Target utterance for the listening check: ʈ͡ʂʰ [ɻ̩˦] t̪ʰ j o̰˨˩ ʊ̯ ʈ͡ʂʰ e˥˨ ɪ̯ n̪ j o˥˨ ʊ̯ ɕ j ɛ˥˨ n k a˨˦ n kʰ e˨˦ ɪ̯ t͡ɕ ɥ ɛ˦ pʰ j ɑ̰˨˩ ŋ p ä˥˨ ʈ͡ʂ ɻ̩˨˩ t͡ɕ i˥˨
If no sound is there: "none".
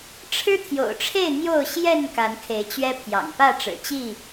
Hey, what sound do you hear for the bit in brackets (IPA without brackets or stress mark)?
ɻ̩˦